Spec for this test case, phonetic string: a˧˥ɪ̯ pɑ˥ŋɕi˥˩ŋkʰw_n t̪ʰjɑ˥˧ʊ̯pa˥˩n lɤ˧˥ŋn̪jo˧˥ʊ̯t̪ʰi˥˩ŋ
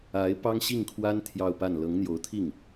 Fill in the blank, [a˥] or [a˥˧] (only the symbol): a˥